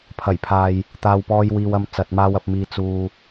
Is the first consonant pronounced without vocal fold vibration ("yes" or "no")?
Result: yes